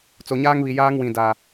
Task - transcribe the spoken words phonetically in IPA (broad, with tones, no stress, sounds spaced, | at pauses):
t͡s o˨ ɲ aː˦ ŋ β i˨ j aː˦ ŋ w ĩ˨ d a˨